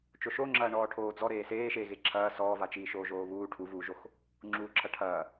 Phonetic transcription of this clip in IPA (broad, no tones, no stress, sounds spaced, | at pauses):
t͡ʃ o ʃ o ŋ͡ǁ ɐː ɳ ɔː ʈʰ oː d͡z ɔ ɾ eː s eː ʃ eː ɣ e ǁʰ ɐː s ɔː v a t͡ʃ iː ʃ oː ʒ oː β uː ʈʰ u v uː ʒ o x | ŋ͡ǁ uː ǁʰ ɐ ʈʰ ɐː